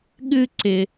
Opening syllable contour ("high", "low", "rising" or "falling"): high